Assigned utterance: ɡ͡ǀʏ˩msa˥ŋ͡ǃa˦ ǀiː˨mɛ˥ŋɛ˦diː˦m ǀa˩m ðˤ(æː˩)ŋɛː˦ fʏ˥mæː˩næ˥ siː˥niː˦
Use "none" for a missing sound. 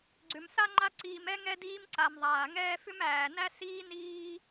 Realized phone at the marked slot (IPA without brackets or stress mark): aː˩